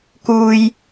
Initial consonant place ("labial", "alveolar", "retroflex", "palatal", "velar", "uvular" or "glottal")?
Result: velar